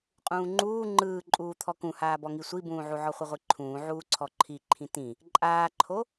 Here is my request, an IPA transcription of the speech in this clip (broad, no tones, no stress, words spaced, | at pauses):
qʼũːŋ͡ǃuː ŋ͡ǃɯːǃʼuːt̪ʰɔ kũhaːbɔŋi sʷibũːʕu ʕɔχʷɯʁʷiǃʰũː ʕuːǀʰɔǃʰiǃʰĩ tĩ | ǃʼaːǃʰo